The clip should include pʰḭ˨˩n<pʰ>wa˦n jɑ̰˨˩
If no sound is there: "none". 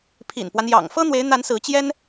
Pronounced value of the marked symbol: p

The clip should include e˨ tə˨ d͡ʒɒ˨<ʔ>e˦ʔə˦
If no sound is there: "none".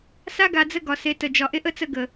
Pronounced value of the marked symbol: ʔ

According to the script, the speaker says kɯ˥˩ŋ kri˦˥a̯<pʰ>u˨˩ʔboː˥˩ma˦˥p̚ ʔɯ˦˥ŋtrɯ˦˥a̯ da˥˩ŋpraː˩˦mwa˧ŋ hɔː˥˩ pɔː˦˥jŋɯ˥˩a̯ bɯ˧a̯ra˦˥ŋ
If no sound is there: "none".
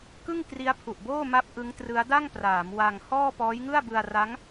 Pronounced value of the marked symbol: pʰ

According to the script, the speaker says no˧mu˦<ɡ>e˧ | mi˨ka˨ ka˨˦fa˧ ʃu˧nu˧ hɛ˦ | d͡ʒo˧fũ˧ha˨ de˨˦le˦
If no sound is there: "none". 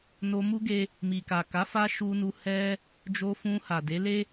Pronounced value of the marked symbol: ɡ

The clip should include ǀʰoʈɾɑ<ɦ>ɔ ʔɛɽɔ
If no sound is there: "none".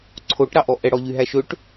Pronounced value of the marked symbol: ʔ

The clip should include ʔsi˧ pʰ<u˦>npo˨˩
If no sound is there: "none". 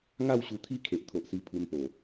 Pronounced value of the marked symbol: u˧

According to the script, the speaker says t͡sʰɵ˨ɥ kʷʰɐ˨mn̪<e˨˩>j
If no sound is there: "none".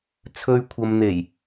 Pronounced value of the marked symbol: e˨˩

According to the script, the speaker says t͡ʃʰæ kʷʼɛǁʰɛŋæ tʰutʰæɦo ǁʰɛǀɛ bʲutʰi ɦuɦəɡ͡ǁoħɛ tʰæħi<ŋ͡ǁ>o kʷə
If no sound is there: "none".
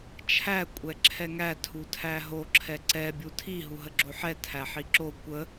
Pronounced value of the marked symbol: ǁ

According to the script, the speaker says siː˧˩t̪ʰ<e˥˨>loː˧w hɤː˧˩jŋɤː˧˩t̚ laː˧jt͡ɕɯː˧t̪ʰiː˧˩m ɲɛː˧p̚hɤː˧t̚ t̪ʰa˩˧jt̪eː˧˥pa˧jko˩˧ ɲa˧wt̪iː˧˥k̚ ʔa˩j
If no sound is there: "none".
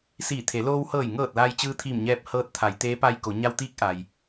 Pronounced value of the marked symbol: e˩˧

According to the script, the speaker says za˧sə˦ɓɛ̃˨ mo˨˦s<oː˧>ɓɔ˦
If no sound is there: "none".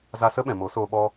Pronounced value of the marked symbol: oː˧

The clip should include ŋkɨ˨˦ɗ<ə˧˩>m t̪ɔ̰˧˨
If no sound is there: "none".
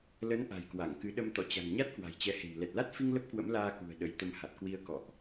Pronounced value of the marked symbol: ə˧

